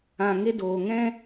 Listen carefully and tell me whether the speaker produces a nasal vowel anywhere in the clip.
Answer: yes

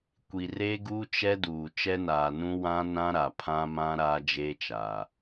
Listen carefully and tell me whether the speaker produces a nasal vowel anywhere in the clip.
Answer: yes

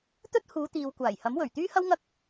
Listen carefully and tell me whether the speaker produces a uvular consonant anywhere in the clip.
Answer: no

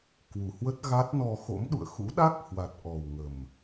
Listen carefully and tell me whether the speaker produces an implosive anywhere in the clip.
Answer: yes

